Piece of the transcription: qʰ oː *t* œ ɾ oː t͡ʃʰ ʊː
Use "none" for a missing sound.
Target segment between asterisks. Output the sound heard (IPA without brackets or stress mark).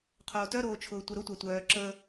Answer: t